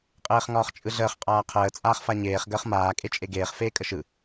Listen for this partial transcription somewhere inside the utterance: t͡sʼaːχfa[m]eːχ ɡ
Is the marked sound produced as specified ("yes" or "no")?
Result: no